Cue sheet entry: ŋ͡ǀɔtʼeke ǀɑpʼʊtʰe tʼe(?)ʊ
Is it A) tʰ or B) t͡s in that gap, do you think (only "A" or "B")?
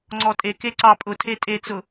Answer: B